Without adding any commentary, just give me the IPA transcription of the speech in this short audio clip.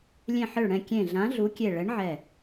lʲ ẽ˧˩ ħ ɘ˧˩ ɭ ɽ ɛ̃˧˩ kʲ ẽ˧˩ ɮ ã˨˥ ɮ u˨˥ kʲ e˧˩ ɭ ɛ˨˥ ɳ ʕ ɛ˧˩

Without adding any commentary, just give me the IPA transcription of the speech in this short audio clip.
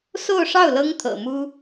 s o˥˧ ʊ̯ ʂ ɑ˥˩ ʊ̯ l ɤ˥ ŋ t̪ʰ ɤ̰˨˩ m u˥

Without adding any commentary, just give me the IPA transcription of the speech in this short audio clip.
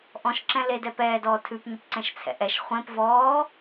ʔ ɔ̃ ʃ ǁ ɛ̃ l e d ɛ p ɛː d ɔː tʰ ʉ p ɲ ɵ p ǀ ɛ̃ ʃ t͡sʰ ɛ̰ ʔ ɛ ʃ χʷ ẽ p v ɔː

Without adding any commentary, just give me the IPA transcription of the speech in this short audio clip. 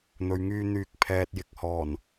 n̪ ɵ˨ ɥ ŋ yː˧ n̪ yː˨ k̚ pʰ ɛː˨ t̚ j ɪ˨ k̚ h ɔː˨˩ n

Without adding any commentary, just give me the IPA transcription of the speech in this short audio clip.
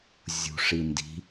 zʲ ṳ ʂ i n d i̤

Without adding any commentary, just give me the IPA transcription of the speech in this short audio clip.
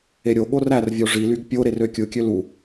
e ɾʲ o ɠ o r æ r vʲ o ʐ i l y ɡ pʲ o ɾ e r ø kʲ ɯ kʲ ø l u

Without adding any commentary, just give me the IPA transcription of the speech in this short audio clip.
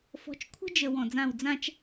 f ɔ̤˨˦ t͡ʃ kʷʰ ə̤˦ d͡ʒ ə˨ w ɔ̃˨ d͡z ã˦˨ w d͡z ã˦ t͡ʃ

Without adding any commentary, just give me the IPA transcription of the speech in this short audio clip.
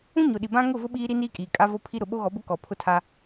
ũ˦ ɲ ʊ˨ ɗ i˨ b ã˦ ŋ ʊ˦˨ v ʊ˦ ɓ iː˦ ɾ i˦ n iː˦ kʼ iː˨ kʼ a˦ v o˦ pʰ i˦ ɾ ʊ˨ ɓ o˦ ɣ ɔ˨˦ b ʊ˦ k ɔ˨ pʰ ʊ˦ tʰ a˦

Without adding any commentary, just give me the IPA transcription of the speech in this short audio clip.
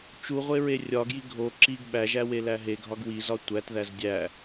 t͡ʃ u ʁʷ e ɹ e rʲ ɒ ɡ j i ɡʱ o ǁ i ɡ ɓ æ ʒ æ w e l æ ɦ e ɡʱ ɒ ɡ w i z ɒ tʷ æ t ð æ z dʲ æ

